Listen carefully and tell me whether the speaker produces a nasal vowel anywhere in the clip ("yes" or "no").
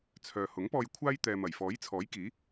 no